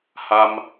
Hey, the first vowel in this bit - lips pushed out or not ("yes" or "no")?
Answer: no